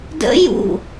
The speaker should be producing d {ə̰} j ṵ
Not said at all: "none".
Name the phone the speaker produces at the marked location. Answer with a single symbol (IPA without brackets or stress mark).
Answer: ə̰